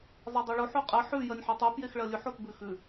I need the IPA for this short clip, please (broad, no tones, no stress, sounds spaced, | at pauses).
zˤ e dˤ o ɭ o ħ o qʼ ɜ ħ ʉ j ɜ nʲ ħ o tˤ u p j e x ɭ ɜ lʲ ʉ ħ o t b ʉ x ʉ